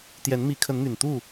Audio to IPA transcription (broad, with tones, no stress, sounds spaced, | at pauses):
t̪ j ɛ˨˦ n m i˨˦ kʰ ə˨˦ n n̪ y˨˩ n t̪ u˥˨